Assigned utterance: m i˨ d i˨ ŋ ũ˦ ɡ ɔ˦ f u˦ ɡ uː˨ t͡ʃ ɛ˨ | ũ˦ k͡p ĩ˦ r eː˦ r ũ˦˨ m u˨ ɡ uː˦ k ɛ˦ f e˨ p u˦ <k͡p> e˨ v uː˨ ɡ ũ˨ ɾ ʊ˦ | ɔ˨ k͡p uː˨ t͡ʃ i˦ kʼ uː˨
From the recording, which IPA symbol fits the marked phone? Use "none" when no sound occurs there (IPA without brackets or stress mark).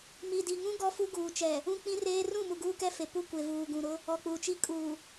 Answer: kʷ